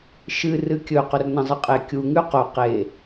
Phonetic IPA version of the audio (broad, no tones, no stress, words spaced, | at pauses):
ʃɨ rɨkʲɵ qɵrnɐ̃zˤɨqʼe kʲu ŋʉqo qe